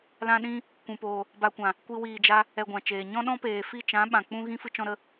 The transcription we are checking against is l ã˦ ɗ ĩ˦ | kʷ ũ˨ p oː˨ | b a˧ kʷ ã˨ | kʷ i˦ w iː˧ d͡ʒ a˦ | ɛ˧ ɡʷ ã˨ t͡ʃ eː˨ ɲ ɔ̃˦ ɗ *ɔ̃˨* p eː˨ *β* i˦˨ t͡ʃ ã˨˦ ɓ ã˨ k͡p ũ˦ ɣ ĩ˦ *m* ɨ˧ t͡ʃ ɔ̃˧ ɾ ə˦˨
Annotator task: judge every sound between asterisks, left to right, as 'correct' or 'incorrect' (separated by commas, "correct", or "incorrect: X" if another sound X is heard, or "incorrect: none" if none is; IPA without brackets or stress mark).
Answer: incorrect: ɔ̃˦, incorrect: f, incorrect: f